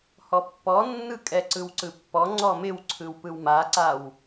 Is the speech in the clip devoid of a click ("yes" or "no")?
no